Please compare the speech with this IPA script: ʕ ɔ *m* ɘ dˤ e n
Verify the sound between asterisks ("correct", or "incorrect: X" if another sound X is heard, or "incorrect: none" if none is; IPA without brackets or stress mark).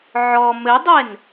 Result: correct